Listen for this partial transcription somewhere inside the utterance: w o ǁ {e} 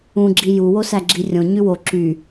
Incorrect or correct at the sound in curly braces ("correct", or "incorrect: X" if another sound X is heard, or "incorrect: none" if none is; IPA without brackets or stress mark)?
incorrect: y